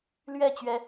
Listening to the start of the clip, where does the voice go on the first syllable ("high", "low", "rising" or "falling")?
falling